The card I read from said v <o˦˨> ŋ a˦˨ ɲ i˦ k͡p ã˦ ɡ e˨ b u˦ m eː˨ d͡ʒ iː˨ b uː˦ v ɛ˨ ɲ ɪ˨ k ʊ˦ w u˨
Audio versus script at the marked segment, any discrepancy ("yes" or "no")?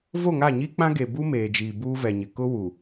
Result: no